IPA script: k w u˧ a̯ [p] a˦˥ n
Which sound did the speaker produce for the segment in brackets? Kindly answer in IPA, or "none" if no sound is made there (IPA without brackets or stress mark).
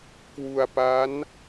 p